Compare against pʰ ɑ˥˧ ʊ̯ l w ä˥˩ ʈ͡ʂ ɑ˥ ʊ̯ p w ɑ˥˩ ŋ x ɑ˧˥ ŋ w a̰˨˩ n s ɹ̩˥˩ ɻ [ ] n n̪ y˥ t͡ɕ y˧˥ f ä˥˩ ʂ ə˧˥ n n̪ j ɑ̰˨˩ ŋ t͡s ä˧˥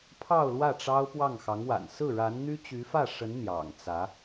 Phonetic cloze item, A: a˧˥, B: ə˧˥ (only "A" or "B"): A